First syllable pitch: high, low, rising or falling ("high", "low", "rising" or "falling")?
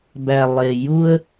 low